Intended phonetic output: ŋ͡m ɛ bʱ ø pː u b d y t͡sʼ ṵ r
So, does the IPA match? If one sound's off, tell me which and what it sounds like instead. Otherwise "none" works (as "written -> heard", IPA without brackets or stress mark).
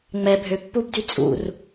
none